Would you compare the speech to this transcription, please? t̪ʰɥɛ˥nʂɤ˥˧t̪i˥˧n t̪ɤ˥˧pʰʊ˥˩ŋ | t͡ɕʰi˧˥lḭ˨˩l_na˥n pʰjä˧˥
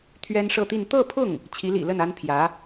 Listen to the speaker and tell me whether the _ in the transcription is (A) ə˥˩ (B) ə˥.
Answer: A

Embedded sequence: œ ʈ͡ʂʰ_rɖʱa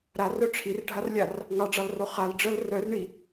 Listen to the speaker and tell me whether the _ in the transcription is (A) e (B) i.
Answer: B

